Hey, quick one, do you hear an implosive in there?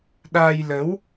yes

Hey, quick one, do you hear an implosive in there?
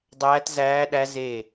yes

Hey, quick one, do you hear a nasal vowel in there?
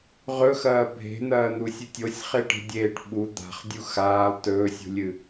no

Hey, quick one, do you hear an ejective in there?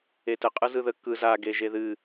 yes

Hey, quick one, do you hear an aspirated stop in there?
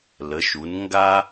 no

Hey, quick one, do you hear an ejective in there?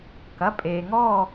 yes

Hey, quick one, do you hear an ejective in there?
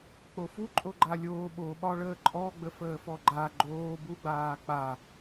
yes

